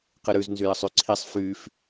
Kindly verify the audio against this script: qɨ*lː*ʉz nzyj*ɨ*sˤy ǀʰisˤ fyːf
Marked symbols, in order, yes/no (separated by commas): no, no